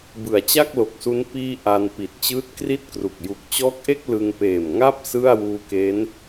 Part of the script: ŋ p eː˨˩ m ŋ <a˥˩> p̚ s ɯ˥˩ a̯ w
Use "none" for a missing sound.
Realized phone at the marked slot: a˥˩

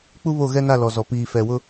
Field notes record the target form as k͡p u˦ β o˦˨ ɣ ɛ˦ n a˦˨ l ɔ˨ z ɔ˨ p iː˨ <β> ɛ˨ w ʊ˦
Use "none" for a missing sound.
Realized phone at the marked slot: f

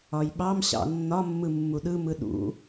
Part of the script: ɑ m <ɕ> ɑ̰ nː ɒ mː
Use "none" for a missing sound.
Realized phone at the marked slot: ɕ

